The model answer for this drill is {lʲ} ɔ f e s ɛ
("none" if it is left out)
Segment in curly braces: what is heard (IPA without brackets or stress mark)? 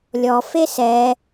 lʲ